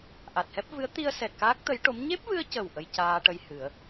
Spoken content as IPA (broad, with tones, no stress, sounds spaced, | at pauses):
ʔ a˨˩ t̚ h ɛ˦˥ p̚ v ɨ˧˥ ə̯ t̪ i˧ ə̯ s ɛ˨˩ t̚ k aː˦˥ k̚ t̪ ə˧˥ j ʈ o˧˥ m ɲ e˦˥ p̚ v ɨ˧ ə̯ c ə˨˩ w ʔ ə˧ j c aː˧ ʈ ə˧ j h ɨ˨˩˦ ə̯